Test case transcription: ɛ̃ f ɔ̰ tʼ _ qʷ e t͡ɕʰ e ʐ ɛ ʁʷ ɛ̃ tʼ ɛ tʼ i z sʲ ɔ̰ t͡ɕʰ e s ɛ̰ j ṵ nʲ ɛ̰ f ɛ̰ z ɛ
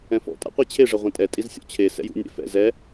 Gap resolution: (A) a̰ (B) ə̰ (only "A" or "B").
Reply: A